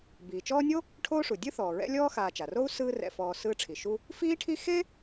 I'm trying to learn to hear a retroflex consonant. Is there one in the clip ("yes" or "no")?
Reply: yes